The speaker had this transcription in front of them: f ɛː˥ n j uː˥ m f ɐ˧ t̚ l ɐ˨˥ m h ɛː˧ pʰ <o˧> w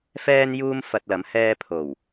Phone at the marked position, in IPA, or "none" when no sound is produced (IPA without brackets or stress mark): o˨˩